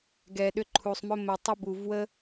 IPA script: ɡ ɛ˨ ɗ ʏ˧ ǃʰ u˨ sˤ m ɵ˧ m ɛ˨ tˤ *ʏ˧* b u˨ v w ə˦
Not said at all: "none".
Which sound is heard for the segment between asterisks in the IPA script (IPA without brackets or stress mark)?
ʏ˧